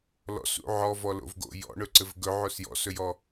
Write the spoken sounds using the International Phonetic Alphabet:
lɔ̰sṵ ʕɔvɔlo̰vɡo̰ jɔ̰ɳɵǀɘv ɡɵʕos jɔ̰sɵjɔ

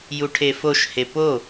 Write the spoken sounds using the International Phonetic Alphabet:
juʈʰefoʃhe po

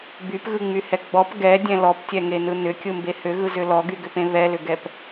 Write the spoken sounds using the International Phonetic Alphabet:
bypɣɯŋ͡myhɛ ɡ͡bɔp ɡɛdʲɛ̃ lɔptʲɛŋenɯ nʏkʲɯmbe hʏɣɯzʏ lɔɡyɡʏpẽ βɛlʏɡɛp

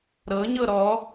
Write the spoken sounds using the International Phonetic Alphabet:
ɾɤɲɤ ɾɔ

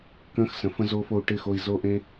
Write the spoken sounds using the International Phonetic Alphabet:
kə̃ː˦xsə̃˨˦ fə̃˦zoː˦fo˧u̯ ʈɪ˦˨xo˧i̯ zo˦ʔẽ˦

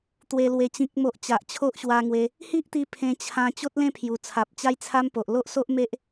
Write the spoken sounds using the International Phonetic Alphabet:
t̪we˨˩lwe˨˩ t͡ɕĩ˨k̚mo˨ʔ t͡ɕa˨ʔt͡ɕʰo˦ʔɕwa˧ŋwe˧ | hi˦ʔt̪i˧ pʰẽ˧t͡ɕʰã˧ t͡ɕo˦t̚lẽ˥˧pʰju˨˩ t͡sʰa˨p̚t͡ɕa˦jt͡sʰa˦m po˨ʔlo˦ʔso˦ʔme˦ʔ

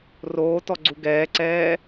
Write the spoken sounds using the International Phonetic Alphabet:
roːtɔɡ͡ǀu ɡɛːǀɛː

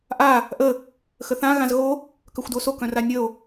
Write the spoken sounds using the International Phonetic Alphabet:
ʔa | ʔə | xəθã ɣãzɣo | kœxʷdoso kœ̃ranʲəo̯

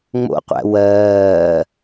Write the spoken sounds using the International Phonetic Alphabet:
ŋ͡mo̰qʷæ̰ wɜː

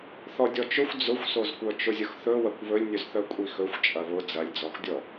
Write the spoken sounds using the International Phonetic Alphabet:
θɔdʲɔt͡ʃɵxʷ d͡zʊxʷsozkʷœ t͡ʃʊzʲʊxθɵ wɐkʷβɵlʲnʲɵzθœ kʷʼixɵxʷ t͡ʃʼɐβʊ d͡zɐlʲd͡zɔxdʲɔ

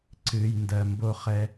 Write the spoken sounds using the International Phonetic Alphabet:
ǀɨ˨j ndɜ˨mbo˦χɛ˦

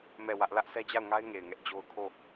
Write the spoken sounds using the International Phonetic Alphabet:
mɛ˦˨wä˦ʔ lä˦ʔsɛ˦d͡ʑa˦˨ʊ̯ŋa˦ɪ̯ ŋe˨ɪ̯ŋɛ˦ʔd͡ʑo˦ʊ̯ kʰo˦˨

